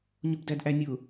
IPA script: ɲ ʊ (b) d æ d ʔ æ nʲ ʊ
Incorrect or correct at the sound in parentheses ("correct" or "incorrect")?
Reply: correct